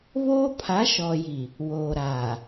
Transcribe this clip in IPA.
β oː˦ pʰ a˨˦ ʃ ɔ˨ j i˨ | w oː˨ ɾ aː˨

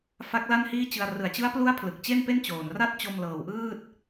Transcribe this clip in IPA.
f a˦˥ k̚ l a˥˩ n h iː˥˩ t͡ɕ ɯ˧ a̯ r ɯ˨˩ a̯ t͡ɕ ɯ˦˥ a̯ p l u˦˥ a̯ pʰ l ɯ˨˩ k̚ t͡ɕ e˥˩ n p e˥˩ n t͡ɕ oː˨˩ n r a˥˩ t̚ t͡ɕ o˧ m l ɤː˨˩ w ʔ ɯː˥˩ t̚

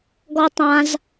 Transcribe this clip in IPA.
ɡ ɔ˦ tˤ ã˦ z

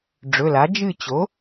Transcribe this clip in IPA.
ɖ͡ʐ ɵ˩˧˩ l a˩˥ d͡ʒ ɨ˦˨ t͡ɕ o˩˥

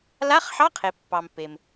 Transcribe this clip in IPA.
l a˧˥˧ χ ħ ɑ˧˥˧ qʰ e˩ pː ɑ˩ m p e˩ m

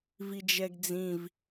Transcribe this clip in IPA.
v i d͡ʒ ɛ ɡ d͡z ĩ v

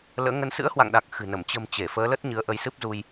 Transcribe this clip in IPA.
l ə̰ː˧˥ ŋ ə˧ n s ɨ̰˧˥ ə̯ h w a̰˧˨ ŋ ɗ aː˨˩ k̚ x ɨ̤˨˩ n ə˧˩ m t͡ɕ ə̤˨˩ m t͡ɕ e˧˩ f əː˨˦ l ə˦˥ t̚ ɲ ɨ˨˦ ə̯ ʔ ə˨˦ j s ɨ˦˥ p̚ z u˧ j

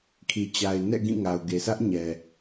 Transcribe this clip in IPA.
kʰ i˨ t͡ɕ a˨ ɪ̯ n ɛ̰˦˨ ɡ ĩ˦˨ ŋ a˨ ʊ̯ ɡ e˨ s ä˦ ʔ ɲ ɛ˨

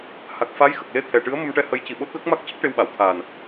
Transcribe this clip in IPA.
h a˨˩ k̚ f a˧˥ j x ə˨˩ k̚ l e˧˥ t̪ʰ ɛ˨˩ ʈ ɨ˧˥ ə̯ m ə˧ m ʈ ɛ˧ h ə˧˥ j c i˨˩ ɓ o˦˥ t̚ ɣ ə˦˥ k̚ m a˦˥ k̚ c ə˦˥ k̚ ʈ e˧ w ɓ a˨˩˨ w t̪ʰ aː˨˩ n

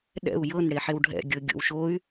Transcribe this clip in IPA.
ɗ ɛ̰ u̯ j ɤ n ɽ e ħ e w ɖʱ ɛ̰ ɡʲ ɤ ɡʲ o̰ w ʃ o y̯

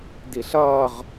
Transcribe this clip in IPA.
d i ɬ ʌː ʁ

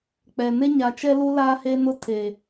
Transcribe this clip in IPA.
k͡p ɛ˨ n e˦ ɲ a˨ t͡ʃ ɛ˦ l u˦ l aː˦ h e˦ n ʊ˦ tʰ e˨

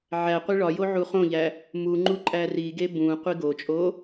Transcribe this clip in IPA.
ʕ æ qʷ e ɭ ɒ j o ʕ u χ õ ʎ æ | m u ŋ͡ǃ u ǃʼ æ r i ɡ e b ũ qʷ i ɡ o t͡ʃʼ o

